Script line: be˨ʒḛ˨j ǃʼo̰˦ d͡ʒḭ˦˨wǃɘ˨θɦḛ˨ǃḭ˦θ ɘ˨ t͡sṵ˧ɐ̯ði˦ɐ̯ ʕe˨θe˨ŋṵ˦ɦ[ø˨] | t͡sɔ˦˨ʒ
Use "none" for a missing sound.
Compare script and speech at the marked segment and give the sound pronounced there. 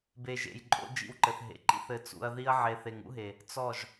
e˨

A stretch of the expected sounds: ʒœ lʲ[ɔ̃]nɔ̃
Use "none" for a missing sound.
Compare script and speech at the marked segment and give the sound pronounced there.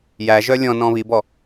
ɔ̃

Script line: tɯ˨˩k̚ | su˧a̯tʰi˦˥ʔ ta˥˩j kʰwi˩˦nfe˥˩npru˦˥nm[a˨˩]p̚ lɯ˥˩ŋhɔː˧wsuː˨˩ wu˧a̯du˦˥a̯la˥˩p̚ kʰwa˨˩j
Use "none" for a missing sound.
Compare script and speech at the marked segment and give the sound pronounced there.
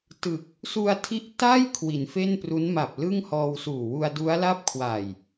a˨˩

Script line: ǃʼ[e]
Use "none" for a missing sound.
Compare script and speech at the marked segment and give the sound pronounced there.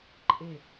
e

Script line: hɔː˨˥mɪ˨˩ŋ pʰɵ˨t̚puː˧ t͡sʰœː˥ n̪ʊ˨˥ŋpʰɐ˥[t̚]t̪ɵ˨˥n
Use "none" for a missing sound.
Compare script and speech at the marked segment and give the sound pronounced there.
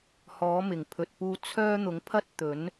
t̚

